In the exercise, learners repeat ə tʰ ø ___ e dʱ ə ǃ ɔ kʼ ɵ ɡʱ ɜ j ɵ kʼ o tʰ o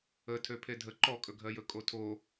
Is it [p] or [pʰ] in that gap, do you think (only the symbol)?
pʰ